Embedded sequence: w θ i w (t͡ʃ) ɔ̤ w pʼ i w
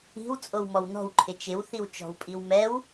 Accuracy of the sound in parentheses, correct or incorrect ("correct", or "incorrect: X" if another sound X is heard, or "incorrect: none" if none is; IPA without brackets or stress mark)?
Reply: correct